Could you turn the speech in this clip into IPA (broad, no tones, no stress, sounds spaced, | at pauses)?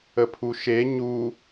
ə pʰ u ʃ e ɲ u